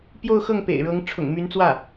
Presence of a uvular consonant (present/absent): absent